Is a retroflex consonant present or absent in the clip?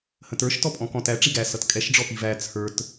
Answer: present